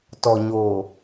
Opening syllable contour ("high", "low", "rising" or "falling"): low